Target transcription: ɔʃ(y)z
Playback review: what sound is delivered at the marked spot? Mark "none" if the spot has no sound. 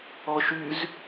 y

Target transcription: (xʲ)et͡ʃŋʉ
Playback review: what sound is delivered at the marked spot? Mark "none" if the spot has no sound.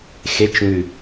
x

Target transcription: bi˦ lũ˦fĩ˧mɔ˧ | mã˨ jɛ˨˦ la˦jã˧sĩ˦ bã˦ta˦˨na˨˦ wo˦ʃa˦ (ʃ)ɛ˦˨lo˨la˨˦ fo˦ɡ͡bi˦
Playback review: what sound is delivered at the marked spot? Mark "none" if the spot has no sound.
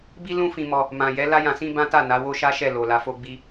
ʃ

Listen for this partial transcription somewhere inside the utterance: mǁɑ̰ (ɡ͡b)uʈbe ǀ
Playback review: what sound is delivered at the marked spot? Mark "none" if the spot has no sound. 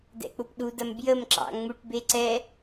ŋ͡m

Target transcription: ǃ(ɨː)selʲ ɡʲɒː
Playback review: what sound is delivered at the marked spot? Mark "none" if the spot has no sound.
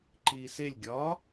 iː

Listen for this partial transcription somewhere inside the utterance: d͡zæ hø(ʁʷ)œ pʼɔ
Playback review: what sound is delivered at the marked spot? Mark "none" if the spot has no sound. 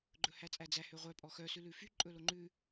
ʁʷ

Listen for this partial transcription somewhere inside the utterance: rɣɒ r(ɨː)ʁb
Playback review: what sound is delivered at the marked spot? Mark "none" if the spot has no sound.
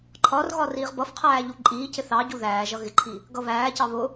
iː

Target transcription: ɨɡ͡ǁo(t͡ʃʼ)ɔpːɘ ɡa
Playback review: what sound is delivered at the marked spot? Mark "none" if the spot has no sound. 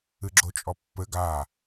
t͡ʃʼ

